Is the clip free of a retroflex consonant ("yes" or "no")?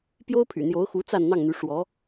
no